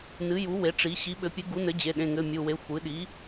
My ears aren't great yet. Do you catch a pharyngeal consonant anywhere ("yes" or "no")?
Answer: no